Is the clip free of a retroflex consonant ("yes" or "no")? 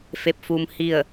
yes